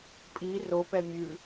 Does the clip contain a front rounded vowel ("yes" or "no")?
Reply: no